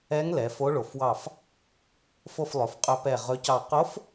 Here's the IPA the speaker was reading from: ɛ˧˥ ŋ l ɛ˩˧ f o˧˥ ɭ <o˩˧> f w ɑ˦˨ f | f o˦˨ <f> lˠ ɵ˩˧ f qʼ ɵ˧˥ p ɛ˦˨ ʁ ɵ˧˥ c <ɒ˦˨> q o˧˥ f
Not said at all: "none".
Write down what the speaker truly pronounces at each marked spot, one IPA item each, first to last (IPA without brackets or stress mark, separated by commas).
o˩˧, f, ɑ˦˨